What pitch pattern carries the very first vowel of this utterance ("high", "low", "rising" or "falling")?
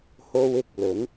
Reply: high